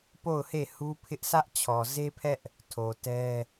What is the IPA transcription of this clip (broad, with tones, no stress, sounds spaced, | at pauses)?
p o˦˨ ʊ̯ h e˦˨ h u˦ pʰ ɪ˦ ʔ s ä˦ ʔ t͡ɕʰ ɔ˨ z e˦ pʰ ɛ˦ ʔ | tʰ o˨ t ɛ˦